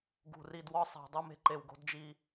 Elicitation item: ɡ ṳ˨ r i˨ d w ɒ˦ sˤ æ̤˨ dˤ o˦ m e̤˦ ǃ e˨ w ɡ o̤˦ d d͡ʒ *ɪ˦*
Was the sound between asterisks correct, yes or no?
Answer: no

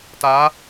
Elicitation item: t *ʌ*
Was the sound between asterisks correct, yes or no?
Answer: no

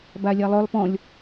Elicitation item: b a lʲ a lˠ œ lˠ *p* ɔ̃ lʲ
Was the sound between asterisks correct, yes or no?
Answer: yes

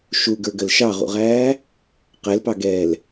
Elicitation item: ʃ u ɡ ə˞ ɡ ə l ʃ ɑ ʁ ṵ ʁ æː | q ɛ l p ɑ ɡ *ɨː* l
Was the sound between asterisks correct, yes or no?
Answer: no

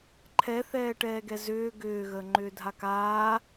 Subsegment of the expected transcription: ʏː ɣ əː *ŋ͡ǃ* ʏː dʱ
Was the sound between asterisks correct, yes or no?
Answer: yes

